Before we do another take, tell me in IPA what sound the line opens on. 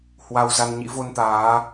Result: h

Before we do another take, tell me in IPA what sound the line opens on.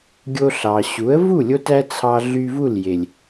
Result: ɡʲ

